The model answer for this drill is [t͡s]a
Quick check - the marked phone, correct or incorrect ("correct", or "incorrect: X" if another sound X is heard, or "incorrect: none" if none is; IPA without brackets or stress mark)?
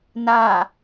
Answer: incorrect: n